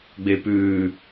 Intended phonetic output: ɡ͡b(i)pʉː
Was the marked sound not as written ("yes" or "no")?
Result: yes